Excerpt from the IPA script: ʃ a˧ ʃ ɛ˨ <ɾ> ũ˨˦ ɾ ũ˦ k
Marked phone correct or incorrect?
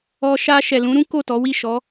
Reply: incorrect